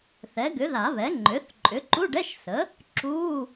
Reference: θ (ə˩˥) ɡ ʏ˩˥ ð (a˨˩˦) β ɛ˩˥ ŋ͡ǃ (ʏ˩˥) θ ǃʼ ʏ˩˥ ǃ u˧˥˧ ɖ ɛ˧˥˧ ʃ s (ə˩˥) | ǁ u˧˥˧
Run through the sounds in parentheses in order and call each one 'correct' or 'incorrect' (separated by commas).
incorrect, correct, correct, correct